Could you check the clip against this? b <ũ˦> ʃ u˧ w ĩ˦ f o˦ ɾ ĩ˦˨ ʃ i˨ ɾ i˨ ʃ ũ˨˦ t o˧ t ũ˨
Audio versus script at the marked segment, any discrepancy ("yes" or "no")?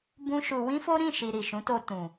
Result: no